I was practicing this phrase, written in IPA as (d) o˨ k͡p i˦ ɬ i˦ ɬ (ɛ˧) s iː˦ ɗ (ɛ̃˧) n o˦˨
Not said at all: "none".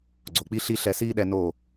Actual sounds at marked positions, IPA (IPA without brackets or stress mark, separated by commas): ɡ͡ǀ, ɛ˧, ɛ˧